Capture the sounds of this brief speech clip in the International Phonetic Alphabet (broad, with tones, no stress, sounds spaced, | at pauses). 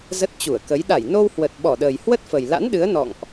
z ə˦˥ t̚ t͡ɕ u˧˩ ə̯ k ə˨˦ j ɗ a˧˩ j n o˧ w h w ə˨˩ t̚ ɓ ɔ˧˩ ɗ əː˨˩ j h w ə˦˥ t̚ f ə˨˩ j l a̰˧˥ n ɗ ɨ˨˦ ə̯ n ɔ̰˧˨ ŋ ʔ